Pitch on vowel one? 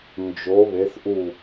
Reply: rising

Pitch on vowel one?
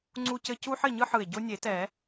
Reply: high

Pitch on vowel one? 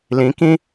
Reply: rising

